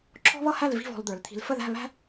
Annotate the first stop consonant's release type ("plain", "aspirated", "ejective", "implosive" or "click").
click